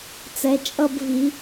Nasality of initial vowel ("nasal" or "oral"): oral